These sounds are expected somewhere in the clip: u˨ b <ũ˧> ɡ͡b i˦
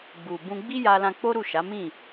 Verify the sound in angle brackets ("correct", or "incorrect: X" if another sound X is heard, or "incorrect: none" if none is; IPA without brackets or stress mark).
correct